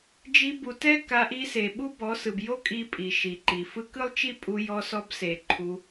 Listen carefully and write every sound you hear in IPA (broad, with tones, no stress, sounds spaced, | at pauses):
d͡ʒ i˧ b u˨ t ɛ˦ k a˧ ʔ i˧ s e˨ ɓ u˦ b ɔ˨˦ s ɯ˨ b j o˦ kʼ i˧ pʼ i˨ ʃ i˨ ǃ i˨ f ɯ˦ k ɯ˦ lˠ t͡ʃ i˦ pʼ u˧ j ɔ˧ s ɔ˧ b s e˨ ǃʰ u˧